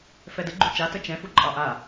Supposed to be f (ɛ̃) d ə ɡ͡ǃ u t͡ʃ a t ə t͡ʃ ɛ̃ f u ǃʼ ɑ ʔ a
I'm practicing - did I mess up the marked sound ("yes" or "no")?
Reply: yes